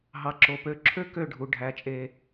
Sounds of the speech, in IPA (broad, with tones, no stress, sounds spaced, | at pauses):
ɦ ɑ˨ ǁ o˨ p ø˨˦ ǁʰ ø˦ k ø˦˨ ɖʱ u˨ ɖʱ æ˨˦ t͡ʃʼ e˧